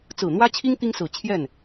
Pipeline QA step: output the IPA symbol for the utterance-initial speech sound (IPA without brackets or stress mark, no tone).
t͡s